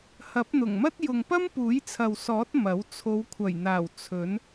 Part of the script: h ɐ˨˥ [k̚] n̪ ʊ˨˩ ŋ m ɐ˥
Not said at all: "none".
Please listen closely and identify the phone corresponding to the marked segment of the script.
p̚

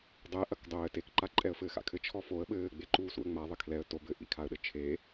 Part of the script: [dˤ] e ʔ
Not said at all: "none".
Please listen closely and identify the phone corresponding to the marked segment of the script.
dˤ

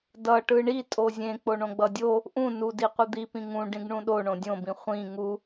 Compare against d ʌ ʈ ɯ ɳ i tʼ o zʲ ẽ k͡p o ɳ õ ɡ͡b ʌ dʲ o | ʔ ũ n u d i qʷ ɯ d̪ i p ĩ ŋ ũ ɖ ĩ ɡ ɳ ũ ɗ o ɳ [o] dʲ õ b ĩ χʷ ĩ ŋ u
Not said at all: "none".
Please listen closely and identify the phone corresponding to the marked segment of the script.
õ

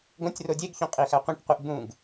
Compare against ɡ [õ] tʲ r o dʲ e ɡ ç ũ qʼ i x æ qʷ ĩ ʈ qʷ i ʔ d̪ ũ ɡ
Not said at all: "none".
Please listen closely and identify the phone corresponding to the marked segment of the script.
õ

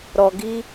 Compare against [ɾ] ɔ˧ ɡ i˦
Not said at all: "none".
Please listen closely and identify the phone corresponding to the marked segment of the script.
ɾ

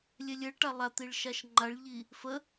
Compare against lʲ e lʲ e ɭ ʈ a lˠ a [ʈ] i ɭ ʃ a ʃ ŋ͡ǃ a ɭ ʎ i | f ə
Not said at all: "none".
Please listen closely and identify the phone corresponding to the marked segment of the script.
t̪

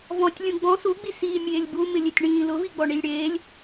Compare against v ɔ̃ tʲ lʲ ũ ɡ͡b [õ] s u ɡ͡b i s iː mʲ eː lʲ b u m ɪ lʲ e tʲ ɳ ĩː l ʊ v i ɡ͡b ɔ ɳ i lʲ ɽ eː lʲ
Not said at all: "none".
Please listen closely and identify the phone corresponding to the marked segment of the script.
ɔ̃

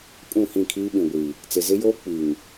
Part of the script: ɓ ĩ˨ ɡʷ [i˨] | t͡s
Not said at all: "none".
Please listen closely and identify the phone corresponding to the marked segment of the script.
i˨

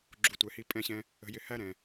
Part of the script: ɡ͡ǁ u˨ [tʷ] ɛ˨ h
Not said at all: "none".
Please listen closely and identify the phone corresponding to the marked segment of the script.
tʷ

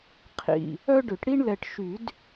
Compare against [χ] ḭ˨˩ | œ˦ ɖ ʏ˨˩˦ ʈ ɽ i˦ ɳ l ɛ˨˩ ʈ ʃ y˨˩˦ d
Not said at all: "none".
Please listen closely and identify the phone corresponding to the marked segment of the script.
qʰ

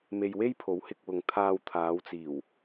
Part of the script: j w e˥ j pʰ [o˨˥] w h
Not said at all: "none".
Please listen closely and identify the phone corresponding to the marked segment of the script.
o˨˥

